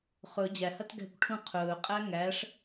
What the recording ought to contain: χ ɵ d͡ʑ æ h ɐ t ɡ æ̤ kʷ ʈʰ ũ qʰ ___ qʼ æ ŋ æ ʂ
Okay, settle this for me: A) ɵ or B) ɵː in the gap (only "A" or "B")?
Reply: B